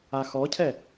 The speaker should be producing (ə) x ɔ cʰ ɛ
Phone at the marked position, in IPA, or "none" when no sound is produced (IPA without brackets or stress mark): a